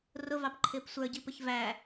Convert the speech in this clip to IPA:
r ʊ v ɑ p ǃʰ ɪː p sʷ ə˞ ɟ i p ə ç v æ

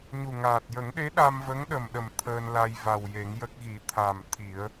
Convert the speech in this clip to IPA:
ɲ u˨˩ ŋ aː˨˩ t̚ j ə˨˩˦ ŋ ɗ e˧˥ ɗ a˧ m v ə˧˥ ŋ ɗ ə˨˩ m ɗ ə˨˩ m t̪ʰ əː˧ n l a˧ j v a˨˩ w j e˨˩˦ ŋ j ə˦˥ k̚ ɣ i˨˩˦ t̪ʰ a˨˩ m t̪ʰ i˨˩˦ ə̯

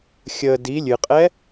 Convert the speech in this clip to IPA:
xʲ ə d i lʲ ɨ qʼ ɛ

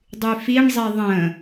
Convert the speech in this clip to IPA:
dˤ y f i ɳ zˤ i ðˤ ə̃

